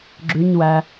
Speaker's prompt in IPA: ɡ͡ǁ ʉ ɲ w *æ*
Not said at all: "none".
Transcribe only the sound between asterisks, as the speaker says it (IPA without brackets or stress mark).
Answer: æ